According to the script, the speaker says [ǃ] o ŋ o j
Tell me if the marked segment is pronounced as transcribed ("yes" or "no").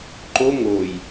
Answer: yes